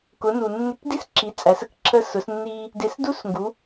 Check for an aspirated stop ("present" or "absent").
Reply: present